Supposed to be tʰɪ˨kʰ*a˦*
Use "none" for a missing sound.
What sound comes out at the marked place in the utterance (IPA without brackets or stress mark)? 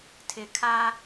a˦